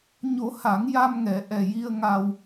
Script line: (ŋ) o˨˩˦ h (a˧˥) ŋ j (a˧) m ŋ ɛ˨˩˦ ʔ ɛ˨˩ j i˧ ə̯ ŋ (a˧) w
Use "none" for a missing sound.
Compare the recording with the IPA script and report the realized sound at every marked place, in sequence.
ɲ, a˨˩˦, a˧, a˧

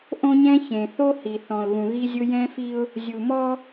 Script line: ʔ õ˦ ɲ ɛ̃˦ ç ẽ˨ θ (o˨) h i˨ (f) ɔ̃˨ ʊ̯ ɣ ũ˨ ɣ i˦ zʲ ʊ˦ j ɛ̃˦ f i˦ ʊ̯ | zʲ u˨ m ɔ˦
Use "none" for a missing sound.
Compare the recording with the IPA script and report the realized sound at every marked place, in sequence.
o˦, θ

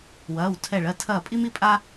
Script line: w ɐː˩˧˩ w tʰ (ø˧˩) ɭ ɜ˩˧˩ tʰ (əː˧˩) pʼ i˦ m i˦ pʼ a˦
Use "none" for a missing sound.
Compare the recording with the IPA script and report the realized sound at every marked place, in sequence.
ɛ˧˩, ɐː˧˩

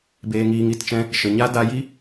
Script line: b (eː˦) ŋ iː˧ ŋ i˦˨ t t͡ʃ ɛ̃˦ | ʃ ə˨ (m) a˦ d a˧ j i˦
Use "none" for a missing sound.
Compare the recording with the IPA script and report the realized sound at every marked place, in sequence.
eː˧, ɲ

